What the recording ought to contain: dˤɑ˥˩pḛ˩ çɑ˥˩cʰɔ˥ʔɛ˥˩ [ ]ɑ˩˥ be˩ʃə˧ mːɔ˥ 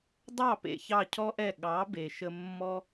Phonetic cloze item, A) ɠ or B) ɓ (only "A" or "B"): A